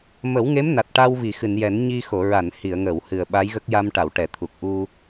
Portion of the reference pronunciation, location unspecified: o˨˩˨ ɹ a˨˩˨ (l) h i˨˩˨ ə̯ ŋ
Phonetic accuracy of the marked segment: incorrect: n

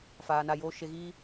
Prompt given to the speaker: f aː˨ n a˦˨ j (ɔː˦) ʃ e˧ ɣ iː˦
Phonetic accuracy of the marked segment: incorrect: oː˦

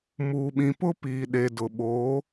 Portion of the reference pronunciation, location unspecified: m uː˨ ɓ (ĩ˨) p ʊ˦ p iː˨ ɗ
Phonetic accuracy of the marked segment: correct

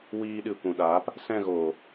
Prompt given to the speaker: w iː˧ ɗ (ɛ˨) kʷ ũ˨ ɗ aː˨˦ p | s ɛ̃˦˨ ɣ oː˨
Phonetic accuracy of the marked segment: incorrect: ɨ˨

